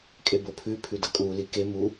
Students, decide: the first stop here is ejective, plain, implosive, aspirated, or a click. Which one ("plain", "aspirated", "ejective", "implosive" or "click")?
ejective